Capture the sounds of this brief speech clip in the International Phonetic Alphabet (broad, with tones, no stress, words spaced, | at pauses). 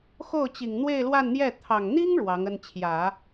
xo˥˩ʊ̯t͡ɕi˨˩ŋ n̪we˥˧ɪ̯lwa˥˧nn̪jɛ˥˩ t̪ʰɑ˨˩ŋ n̪i˥ŋ ɻwɑ˧˥ŋə˥n t͡ɕʰjä˨˩˦